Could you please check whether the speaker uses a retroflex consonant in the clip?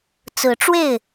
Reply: yes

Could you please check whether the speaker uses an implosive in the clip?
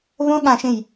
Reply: yes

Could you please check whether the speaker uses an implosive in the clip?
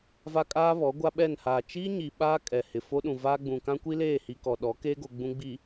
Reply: yes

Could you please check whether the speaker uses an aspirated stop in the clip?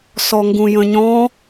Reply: no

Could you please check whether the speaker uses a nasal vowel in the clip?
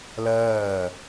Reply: no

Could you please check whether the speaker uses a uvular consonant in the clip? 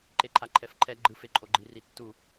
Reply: no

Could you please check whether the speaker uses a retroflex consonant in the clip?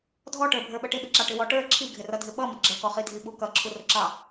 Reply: yes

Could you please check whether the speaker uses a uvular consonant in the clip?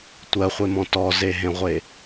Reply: yes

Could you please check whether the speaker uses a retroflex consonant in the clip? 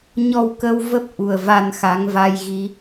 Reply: no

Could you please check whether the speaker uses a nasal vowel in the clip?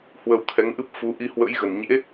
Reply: no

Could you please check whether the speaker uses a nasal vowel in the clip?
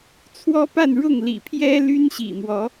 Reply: no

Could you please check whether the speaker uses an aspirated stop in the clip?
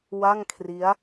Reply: yes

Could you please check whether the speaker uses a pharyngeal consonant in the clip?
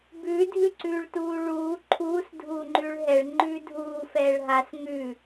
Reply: no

